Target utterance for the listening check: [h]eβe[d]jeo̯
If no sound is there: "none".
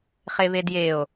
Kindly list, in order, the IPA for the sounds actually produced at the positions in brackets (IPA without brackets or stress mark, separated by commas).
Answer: χ, d